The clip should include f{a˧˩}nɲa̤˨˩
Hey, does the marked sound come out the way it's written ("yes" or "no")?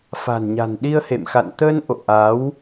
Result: no